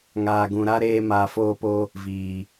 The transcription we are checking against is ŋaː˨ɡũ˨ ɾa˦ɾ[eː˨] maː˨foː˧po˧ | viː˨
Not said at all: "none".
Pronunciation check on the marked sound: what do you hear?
eː˧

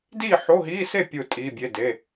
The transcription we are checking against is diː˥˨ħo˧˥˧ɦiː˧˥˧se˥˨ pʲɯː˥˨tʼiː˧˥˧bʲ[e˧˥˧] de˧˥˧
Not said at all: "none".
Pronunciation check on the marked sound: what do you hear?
e˧˥˧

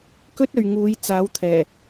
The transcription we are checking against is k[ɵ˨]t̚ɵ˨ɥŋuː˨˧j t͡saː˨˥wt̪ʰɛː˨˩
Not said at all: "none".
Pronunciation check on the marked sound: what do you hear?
ɵ˥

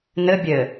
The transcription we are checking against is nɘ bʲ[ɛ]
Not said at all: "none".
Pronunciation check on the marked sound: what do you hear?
ɘ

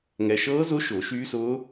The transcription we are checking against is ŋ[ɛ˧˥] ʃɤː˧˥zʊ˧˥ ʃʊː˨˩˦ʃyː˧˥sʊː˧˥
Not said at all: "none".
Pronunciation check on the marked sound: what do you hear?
ɛ˧˥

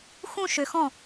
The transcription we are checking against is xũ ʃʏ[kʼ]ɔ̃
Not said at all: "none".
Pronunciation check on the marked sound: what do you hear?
x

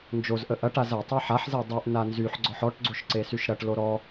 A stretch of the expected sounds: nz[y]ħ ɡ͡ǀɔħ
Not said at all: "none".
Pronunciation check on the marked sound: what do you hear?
y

